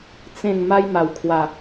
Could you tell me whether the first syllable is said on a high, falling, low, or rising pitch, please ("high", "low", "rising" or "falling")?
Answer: falling